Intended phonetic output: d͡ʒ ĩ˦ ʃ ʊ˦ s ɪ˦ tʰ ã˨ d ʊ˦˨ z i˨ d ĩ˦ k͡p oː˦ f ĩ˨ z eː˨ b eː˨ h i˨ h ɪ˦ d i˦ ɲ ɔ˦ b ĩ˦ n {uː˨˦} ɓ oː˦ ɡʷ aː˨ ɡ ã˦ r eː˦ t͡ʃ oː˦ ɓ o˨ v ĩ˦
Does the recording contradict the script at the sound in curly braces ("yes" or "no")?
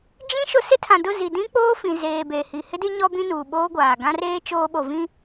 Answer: yes